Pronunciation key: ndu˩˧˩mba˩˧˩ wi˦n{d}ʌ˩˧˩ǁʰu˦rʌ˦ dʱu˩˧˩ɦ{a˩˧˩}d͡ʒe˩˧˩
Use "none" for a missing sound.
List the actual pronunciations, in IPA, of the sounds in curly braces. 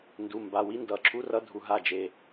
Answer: d, a˦˨

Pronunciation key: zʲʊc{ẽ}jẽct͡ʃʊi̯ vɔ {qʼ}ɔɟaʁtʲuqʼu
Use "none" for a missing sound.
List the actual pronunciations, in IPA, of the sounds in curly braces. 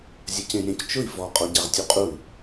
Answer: ẽ, qʼ

